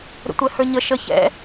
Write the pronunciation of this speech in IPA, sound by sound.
ɾ ə̰ tʷ ɛ h ə˞ ɲ ə ʃ ə ç ɛ̰

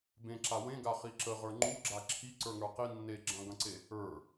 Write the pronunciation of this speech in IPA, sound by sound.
b ẽ ǁ a w ẽ ɡ a χ i ǁ ə ʁ ə˞ ŋ͡ǃ u ɡ͡ǁ a ǁʰ i ǀ ə˞ ŋ ə˞ q i nː e ɡ͡ǁ ɐ̃ ɡ ɐ̃ ǀ e | ə˞

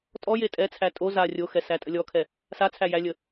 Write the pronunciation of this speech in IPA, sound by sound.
tʼ ɔ j e tʼ ɛ t͡sʰ æ tʼ o z a rʲ o x ɛ s æ tʼ ə lʲ ɔ kʰ ɛ | s a t͡sʰ æ j æ lʲ ə

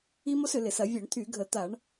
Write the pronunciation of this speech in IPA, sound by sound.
i˥ m o˥ s ʏ˧˩˧ l ɪ˧˩˧ s ɐ˧˩˧ vʲ œ˧˩˧ ɳ t̪ʰ y˧˩˧ ɡʱ ə˧˩˧ t̪ a˧˩˧ ɳ

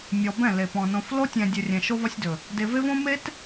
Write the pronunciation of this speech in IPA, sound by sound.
mʲ ɔ˨ b ɛ̃˦˨ l e˨ p ɔ̃˨ n õ˨ f l o˦ tʲ ɛ̃˨ dʲ ɵ˨ rʲ ɛ̃˨ ʃ o˦ v ɒ˦ sʲ d ɵ˨ | d e˨ v e˦ v õ˦ m e˦ t

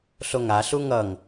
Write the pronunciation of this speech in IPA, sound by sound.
ɬ o ŋ a ɬ u ŋ ʌ ŋ

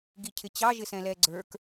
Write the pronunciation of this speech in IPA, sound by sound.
ɡ i cʰ ɪ t͡ɕ ɑ ʒ ɪ s ɛ̃ l ɛ ɡ͡ǀ ə˞ k

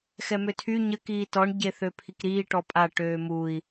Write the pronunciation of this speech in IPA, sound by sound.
x ɛ m ø tʰ y ɲ ə k iː t ɔ ɳ ɟ e θ ø pʰ i k ɾ iː ʈ ɔ pʼ a ʈ øː m u i̯

